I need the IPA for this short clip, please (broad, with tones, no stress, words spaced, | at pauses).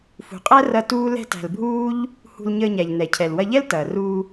fṳ˨qʼæ˦ rɐ˦ tuː˦lɛ̤˦tæ̤˧l bʱuː˦ʎ | hṳ˧lɲəː˧ɲæ˨ʎ nɛ˨cʰɛ˨l wɐ˧ʎɛ˦l tɐː˨ ruː˧